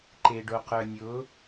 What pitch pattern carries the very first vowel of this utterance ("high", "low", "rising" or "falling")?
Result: low